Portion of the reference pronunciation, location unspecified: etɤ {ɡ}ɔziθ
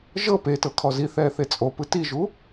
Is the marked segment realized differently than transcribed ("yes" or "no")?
yes